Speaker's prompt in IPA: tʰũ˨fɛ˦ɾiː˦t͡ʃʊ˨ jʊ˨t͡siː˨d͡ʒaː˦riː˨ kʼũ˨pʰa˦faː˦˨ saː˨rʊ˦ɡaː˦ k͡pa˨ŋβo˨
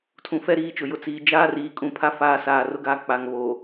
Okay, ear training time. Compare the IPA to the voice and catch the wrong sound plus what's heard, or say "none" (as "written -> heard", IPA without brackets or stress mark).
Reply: none